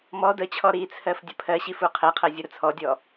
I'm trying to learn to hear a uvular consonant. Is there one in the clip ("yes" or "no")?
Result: yes